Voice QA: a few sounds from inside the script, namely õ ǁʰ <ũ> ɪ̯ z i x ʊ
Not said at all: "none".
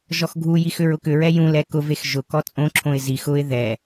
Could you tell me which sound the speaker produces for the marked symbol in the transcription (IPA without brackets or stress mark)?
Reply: õ